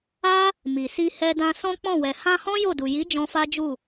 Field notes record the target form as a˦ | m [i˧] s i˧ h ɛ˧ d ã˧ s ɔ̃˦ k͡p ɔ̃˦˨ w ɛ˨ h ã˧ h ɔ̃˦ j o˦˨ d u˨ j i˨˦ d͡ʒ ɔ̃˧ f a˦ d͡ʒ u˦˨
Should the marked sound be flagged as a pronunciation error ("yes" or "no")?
yes